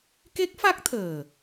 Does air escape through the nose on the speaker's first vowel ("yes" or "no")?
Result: no